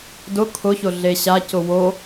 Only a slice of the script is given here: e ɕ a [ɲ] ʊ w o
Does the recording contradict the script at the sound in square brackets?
yes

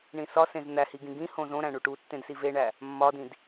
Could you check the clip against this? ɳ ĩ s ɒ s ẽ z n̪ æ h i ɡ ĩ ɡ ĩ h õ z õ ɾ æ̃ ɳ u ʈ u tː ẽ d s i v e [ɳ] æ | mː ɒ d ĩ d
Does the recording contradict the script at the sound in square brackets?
no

